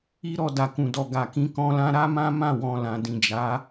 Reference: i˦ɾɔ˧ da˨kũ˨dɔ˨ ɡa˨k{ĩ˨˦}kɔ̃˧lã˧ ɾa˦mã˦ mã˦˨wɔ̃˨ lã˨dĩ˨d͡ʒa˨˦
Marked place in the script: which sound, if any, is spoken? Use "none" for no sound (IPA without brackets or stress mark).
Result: ĩ˨˦